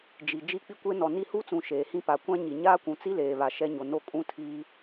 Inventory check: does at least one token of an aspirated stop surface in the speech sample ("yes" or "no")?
yes